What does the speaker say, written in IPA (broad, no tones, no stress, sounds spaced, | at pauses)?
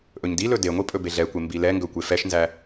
ʔ ɵ ɲ d i l ɵ d e ŋʷ i pʼ ɵ b e ɮ ɛ kʷ e m b i l ɛ ŋ ɡ ɵ kʷ e f ɛ ʃ n z æ